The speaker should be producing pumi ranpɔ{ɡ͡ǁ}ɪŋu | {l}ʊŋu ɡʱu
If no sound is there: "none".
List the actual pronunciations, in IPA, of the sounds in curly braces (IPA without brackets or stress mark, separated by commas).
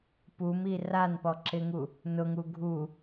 ǁ, n